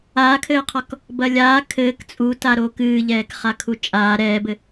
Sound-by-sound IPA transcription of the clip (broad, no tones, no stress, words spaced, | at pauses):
aːkʰɘːqʰɔk | bɐlʲaː kʰɘːk t͡sʼuta ɾoːkɨːʎɛːk χakʰut͡ʃʼaː ɾɛːbɘ